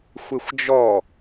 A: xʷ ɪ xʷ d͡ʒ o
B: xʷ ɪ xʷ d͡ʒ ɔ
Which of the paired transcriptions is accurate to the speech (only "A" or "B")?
B